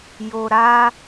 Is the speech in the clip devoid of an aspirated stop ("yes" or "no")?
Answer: yes